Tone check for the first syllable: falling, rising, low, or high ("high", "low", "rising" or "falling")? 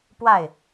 falling